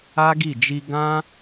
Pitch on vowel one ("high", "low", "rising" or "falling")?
high